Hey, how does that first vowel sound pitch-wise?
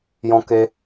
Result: high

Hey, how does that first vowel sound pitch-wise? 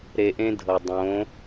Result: low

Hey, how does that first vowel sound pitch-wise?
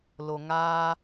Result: low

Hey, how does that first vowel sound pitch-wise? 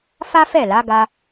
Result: high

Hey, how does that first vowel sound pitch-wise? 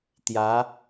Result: rising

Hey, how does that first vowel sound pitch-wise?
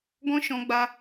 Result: high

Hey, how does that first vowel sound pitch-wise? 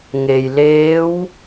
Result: low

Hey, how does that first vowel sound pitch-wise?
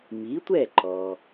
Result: rising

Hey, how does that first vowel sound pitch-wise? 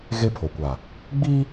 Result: high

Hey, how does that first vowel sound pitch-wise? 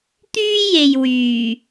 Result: high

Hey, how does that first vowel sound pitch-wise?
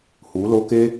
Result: rising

